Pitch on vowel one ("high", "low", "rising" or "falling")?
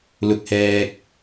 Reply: low